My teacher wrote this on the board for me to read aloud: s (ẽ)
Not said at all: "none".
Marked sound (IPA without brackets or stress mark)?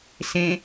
ẽ